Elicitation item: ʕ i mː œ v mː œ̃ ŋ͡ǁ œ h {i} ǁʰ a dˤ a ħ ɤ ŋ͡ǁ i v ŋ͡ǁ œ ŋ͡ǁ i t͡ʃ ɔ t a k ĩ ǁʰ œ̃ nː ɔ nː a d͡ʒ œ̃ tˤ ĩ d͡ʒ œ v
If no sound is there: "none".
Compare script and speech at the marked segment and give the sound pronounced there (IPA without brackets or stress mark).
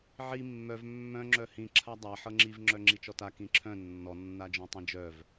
ĩ